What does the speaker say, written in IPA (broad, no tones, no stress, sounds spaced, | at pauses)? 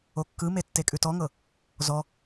o kː ɯ m e tː e kʼ ʉ t ɔ ŋ ɤ | z ɔ